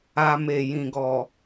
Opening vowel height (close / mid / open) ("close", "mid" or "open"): open